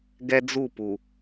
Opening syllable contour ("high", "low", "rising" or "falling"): high